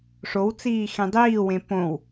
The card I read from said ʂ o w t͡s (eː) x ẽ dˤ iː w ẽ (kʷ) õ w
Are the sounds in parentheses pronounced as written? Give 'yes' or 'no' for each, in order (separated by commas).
no, no